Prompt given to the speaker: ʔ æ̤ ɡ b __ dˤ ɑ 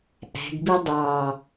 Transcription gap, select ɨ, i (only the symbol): i